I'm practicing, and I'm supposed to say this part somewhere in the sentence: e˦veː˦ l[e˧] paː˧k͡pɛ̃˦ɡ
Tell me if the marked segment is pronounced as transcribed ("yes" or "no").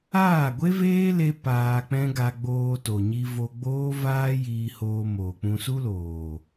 no